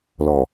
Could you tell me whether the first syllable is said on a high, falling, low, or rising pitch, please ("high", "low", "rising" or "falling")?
low